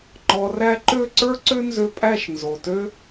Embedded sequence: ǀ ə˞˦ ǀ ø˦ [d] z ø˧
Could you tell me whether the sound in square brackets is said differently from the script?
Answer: yes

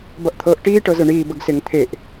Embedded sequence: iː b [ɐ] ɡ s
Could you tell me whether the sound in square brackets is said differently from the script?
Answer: yes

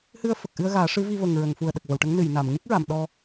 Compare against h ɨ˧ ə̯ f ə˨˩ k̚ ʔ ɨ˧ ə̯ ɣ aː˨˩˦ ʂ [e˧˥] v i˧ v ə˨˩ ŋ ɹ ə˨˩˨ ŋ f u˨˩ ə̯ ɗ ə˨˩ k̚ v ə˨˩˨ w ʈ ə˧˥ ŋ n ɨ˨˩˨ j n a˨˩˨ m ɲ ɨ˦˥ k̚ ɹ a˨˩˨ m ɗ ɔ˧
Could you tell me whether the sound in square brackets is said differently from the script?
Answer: yes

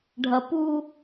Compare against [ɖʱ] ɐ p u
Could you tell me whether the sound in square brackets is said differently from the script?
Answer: no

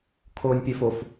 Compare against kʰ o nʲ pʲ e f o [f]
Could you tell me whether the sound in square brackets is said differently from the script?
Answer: no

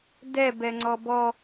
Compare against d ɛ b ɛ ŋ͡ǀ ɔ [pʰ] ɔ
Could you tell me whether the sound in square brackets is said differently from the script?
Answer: yes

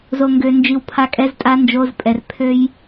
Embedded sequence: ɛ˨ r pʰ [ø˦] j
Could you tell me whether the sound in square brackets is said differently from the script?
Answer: no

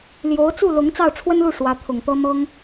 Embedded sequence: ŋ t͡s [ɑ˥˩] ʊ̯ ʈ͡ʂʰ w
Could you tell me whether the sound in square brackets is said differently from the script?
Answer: no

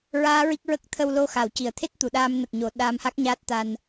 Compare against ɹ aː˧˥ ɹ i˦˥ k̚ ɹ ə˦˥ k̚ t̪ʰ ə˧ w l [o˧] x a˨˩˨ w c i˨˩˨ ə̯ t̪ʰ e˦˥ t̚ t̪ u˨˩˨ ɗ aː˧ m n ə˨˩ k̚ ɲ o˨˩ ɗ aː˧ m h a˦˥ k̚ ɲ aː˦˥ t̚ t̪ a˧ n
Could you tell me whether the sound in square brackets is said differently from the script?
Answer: no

